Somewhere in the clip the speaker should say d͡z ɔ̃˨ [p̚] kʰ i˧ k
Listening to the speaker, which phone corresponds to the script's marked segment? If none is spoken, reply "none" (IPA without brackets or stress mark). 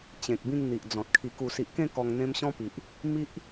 t̚